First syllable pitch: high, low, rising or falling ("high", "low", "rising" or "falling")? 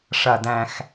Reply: low